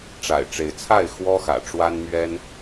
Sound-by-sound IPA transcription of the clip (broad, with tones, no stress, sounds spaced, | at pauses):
ʈ͡ʂ a̰˨˩ ɪ̯ ʈ͡ʂ e˨˦ ɪ̯ t͡sʰ a˥˨ ɪ̯ x w ɔ˦ x ä̰˨˩ ʈ͡ʂ w a˦ n m ɥ ɛ˦ n